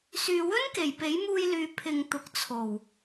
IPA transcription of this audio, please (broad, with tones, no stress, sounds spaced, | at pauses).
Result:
s yː˨ w ɵ˥ n k e˨˩ j p e˨˥ j m uː˧ j l yː˨ pʰ ɪ˨ ŋ t̪ ʊ˨ k̚ t͡sʰ o˨˩ w